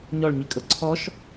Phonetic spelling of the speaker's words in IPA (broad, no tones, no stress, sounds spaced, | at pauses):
ɲ ɔ ɭ ɲ i kʼ ɤ ǀʰ ɔ ʃ